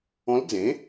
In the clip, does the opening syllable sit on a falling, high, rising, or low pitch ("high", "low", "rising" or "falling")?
rising